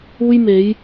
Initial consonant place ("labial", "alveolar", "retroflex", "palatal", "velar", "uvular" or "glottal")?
palatal